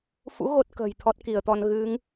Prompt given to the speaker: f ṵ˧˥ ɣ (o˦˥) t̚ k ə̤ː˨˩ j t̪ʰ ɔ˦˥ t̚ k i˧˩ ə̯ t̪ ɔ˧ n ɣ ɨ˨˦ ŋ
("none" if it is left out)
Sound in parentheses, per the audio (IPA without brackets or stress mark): o˦˥